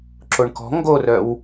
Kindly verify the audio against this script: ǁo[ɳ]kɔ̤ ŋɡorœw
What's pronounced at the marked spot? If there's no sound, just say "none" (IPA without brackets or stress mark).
ɳ